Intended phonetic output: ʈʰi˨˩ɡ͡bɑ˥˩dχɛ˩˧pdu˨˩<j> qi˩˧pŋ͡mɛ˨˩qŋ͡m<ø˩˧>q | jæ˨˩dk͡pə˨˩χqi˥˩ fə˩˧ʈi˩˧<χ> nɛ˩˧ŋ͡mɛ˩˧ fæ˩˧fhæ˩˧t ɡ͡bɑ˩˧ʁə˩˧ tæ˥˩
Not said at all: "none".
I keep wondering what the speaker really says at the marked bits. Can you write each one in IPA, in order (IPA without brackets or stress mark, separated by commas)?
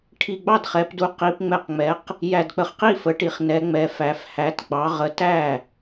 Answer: none, ɛ˩˧, χ